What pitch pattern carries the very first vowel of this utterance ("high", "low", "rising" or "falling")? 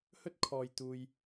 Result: high